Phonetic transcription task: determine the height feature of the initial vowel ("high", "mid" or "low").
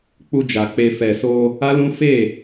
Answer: high